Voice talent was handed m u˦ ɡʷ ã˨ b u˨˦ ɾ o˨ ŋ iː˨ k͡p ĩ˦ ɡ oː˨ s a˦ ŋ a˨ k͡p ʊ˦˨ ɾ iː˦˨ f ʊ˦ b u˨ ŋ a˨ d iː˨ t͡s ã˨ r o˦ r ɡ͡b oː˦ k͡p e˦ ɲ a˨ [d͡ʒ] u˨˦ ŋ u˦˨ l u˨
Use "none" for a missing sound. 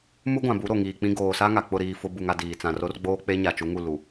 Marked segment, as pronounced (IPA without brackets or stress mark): t͡ʃ